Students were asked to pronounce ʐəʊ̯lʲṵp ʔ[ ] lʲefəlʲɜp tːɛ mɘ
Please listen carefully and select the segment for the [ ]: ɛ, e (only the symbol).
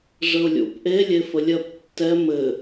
e